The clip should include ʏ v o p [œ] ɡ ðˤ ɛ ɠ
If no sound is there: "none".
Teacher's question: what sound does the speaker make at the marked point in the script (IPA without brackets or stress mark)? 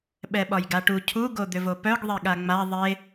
œ